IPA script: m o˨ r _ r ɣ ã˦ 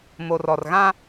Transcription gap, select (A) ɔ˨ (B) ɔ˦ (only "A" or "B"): A